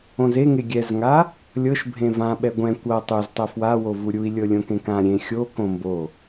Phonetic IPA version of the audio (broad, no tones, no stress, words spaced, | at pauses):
õzeŋe ɡʲɛzŋa | lʲɤʃ bʱẽvãɓɛ ɡʷɛ̃ kʷɤ tˤuztˤɛ fwawovu ɾʲui̯lʲɤ lʲõkẽkã ɾʲẽ xʲo kõmbo